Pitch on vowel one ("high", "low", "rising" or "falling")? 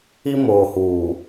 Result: high